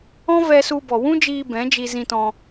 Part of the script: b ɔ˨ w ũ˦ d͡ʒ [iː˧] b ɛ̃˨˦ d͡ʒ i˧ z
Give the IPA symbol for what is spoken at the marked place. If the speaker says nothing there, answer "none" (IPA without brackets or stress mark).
iː˧